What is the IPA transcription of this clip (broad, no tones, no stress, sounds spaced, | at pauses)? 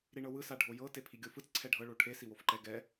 ɾ i ɳ ɤ w ɯ s a ɖʱ o j ɤ t e pʰ i ɡʲ o f ɯ t͡s ǀʰ ɛ ɖʱ ɤ ɭ o ʈʰ e s i w o f ǃ ɛ ɡ ɛ